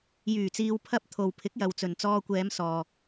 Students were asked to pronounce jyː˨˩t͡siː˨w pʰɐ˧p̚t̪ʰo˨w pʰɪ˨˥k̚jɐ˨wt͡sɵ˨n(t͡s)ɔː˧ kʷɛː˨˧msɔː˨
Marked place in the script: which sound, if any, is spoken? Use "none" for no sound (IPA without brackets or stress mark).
t͡s